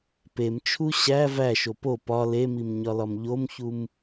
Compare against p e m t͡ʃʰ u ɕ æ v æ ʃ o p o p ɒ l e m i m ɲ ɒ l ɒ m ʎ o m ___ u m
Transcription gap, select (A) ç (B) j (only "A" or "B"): A